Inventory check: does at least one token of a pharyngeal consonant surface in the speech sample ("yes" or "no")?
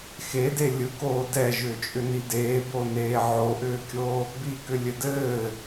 yes